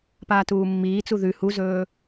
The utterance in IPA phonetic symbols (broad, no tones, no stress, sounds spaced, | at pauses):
p aː t uː mː iː t͡s u ð ʉ h u z ɵː